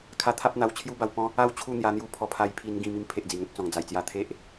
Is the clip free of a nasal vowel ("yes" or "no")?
no